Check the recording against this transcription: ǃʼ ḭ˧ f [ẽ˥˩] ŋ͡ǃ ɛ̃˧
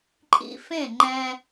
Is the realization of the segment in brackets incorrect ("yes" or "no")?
no